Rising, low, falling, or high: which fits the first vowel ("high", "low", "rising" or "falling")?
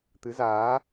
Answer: rising